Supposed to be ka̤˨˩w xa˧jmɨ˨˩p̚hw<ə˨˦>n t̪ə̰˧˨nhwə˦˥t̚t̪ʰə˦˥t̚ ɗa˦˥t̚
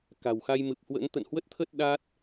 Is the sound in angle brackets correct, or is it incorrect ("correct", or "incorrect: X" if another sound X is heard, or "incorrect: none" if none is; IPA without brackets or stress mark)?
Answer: incorrect: ə̰˧˥